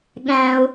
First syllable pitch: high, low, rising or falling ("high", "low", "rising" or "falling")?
high